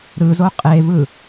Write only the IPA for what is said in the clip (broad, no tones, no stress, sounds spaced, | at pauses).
ɾ ɯ z o qʼ e v ɯ